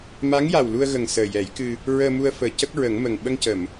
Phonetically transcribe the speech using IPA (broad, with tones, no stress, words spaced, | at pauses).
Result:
ma˧˥ŋja˨˩wlu˧ə̯ɣə˨˩ŋ səː˨˩jɛ˨˩˦jkɨ˧ | ɹəː˧mu˧ə̯fəː˨˩ cə˦˥k̚ɹə˨˩˦ŋmə˨˩ŋ ɓə˧ŋcə˨˩˨m